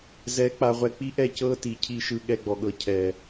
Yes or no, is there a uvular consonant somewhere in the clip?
yes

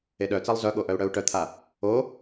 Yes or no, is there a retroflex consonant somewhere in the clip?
yes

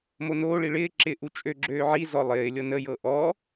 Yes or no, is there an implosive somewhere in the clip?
no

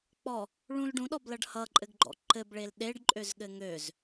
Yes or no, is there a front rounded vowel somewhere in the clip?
yes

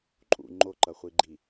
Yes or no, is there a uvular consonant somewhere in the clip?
yes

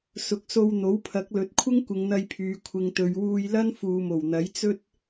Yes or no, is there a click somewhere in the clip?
no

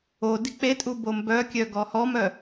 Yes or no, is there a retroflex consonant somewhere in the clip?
no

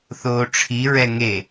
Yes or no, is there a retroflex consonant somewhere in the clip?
yes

